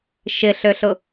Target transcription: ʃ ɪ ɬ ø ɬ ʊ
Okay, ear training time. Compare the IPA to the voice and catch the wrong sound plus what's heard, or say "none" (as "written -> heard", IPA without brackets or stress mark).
none